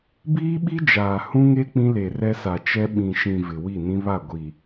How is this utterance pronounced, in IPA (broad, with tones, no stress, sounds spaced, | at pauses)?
b iː˦ ɓ i˦ d͡ʒ aː˨ h ũ˦ ŋ e˦ k͡p ĩ˦ l e˨ r ɛ˦ s a˨ t͡ʃ ɛ˦ ɓ ĩ˨ ʃ ĩ˨ v ɪ˨ w i˦˨ n ĩ˦ β a˦˨ ɡʷ i˨